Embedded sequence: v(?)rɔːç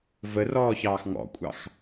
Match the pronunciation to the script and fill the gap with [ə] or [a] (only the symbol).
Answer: ə